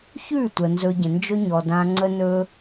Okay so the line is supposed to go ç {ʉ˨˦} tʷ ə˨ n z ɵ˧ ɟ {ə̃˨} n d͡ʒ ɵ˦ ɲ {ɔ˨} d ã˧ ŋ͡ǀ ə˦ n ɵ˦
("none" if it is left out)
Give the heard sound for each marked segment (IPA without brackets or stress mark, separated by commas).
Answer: ʉ˦˨, ə̃˨, ɔ˨